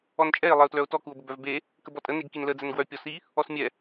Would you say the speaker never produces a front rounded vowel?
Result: no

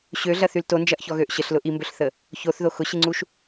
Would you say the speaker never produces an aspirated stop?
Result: yes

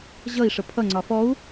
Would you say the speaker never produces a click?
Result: no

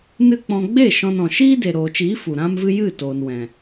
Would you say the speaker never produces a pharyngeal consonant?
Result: yes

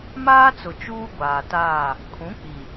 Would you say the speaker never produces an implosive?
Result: yes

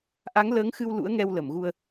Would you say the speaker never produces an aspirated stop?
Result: yes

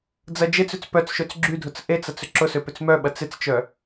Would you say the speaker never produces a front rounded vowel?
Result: no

